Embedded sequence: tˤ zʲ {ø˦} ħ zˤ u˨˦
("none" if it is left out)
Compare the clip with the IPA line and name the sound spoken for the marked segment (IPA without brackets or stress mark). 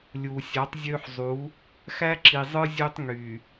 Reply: ø˦